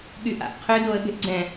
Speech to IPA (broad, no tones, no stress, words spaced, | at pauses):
ɠyʔa̰ʔ qʰø doə̯ɠe̤ʔɡ͡ǀɛ̃